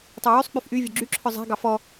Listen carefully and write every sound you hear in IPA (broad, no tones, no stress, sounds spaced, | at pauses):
tˤ o w y sˤ k͡p y f ʔ y vʲ ø ɡ͡ǁ y ǁʰ œ zˤ æ̤ ɡ ɑ f ɔ